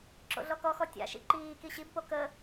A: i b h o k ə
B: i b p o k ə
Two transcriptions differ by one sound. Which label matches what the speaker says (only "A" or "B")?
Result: B